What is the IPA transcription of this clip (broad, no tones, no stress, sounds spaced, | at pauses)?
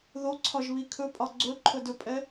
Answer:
ð o ǀʰ ɒ ʒ β i kʰ ɵ pʼ ɒ ɡ͡ǀ ɵ ǃʰ ɵ d ɵ pʼ ɛ